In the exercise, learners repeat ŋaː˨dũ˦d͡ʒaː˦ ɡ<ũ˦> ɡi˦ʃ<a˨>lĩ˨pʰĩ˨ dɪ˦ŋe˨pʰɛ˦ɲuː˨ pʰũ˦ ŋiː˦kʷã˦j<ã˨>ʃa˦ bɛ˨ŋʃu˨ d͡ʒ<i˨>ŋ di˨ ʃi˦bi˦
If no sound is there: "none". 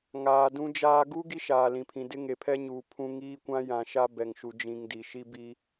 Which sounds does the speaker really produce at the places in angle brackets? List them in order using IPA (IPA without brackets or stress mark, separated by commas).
u˦, aː˨, ã˨, ĩ˨